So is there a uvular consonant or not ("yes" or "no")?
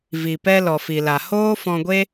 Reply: no